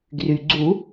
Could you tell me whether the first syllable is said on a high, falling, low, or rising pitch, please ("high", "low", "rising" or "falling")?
low